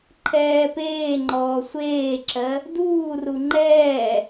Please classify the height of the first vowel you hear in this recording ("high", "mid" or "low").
mid